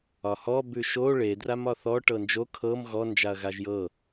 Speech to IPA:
ɒ h ɔ b ʉ ʃ o ɭ e d r a m ɒ θ ɔ ʈ ɤ n d͡ʒ o kʰ ɤ m ɣ ɔ n d͡ʒ a ɐ̯ ɣ a ʒ j ɤ

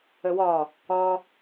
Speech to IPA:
ə w ɒ | ɒ

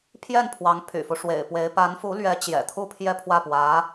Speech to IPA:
pʰ j ɛ˥˩ n pʰ w ɑ˧˥ ŋ pʰ y̰˨˩ f u˦ ʂ w ḛ˨˩ ɪ̯ p w e˧˥ ɪ̯ p a˧˥ n f u˧˥ l ɥ ɛ˧˥ t͡ɕ j ɛ̰˨˩ t̪ʰ u˥ pʰ j ɛ˥˧ pʰ w ä˥˩ p w ä˧˥

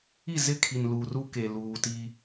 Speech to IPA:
i˦˨ z ɪ˦˨ kʰ i˨ n l u˨ r u˦ k e˨ l uː˨ t i˦

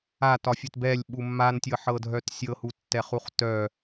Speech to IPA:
a t ɒ fʲ ɘ t b ɛ lʲ ɓ u mː a n tʲ ɤ ħ ɤ dʱ œ t sʲ ɤ h u tː ɛ χ u χ t œ

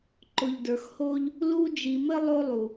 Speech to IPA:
ǃ ʊ˨ ʎ d ə˞˨ x h o˦ ʎ | l u˦ d͡ʒ i˨ m ɘ˥ lˠ o˦ lˠ u˩

